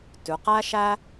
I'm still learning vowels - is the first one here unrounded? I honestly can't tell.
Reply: no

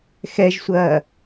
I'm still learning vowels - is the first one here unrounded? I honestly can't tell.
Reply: yes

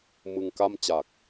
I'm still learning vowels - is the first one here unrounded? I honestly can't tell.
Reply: yes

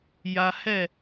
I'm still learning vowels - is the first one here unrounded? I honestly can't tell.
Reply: yes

